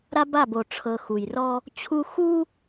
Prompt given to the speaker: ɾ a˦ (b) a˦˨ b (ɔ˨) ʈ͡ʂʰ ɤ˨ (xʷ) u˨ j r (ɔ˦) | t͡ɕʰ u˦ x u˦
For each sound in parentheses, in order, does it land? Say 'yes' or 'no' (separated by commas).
yes, no, no, yes